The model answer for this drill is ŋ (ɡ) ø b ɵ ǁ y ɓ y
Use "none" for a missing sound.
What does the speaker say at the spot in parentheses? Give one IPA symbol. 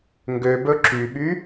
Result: ɡ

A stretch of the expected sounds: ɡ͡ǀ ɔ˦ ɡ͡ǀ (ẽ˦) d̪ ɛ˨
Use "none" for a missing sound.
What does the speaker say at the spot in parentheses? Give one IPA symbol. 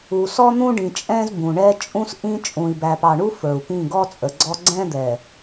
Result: ɛ̃˦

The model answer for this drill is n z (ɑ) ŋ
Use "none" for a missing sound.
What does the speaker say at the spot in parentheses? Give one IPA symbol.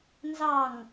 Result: ɑ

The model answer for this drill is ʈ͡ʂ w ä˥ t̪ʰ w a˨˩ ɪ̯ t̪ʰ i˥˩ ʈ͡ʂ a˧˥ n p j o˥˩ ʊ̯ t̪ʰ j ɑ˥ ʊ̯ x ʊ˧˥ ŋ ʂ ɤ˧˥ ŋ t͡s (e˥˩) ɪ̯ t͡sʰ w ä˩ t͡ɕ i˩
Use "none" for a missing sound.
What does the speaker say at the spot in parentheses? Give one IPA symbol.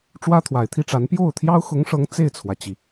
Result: e˥˩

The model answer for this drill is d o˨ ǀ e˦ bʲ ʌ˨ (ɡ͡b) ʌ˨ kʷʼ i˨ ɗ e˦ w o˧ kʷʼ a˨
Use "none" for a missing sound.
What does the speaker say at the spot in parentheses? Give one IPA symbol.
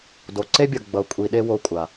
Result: ɡ͡b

